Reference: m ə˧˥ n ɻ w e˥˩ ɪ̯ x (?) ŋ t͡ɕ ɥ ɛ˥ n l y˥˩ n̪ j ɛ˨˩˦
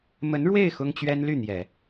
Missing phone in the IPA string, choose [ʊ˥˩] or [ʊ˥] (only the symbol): ʊ˥